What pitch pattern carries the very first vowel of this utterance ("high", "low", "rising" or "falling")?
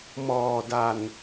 low